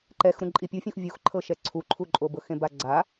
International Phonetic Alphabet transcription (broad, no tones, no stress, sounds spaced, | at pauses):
ǃ ɛ x ɾ ũ ǃʼ i pʲ u fʲ ũ x vʲ u x ǃʰ ɤ ʃ ɛ ǀʰ u ǃʰ u ǃʼ o b ɤ x ẽ b a ɡ͡ǀ a